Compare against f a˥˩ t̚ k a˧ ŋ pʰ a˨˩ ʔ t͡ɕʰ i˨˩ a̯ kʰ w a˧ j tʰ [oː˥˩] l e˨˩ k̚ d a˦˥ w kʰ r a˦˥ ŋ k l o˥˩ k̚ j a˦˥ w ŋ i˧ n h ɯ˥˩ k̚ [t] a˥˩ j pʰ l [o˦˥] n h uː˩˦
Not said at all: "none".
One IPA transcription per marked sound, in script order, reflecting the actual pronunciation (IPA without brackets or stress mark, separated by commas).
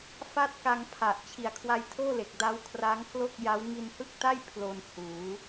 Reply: oː˥˩, t, o˧